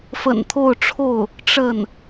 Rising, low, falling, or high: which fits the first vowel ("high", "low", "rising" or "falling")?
low